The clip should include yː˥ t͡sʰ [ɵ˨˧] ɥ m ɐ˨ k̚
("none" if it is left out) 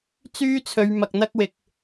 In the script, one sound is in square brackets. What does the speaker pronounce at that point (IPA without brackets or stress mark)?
ɵ˨˧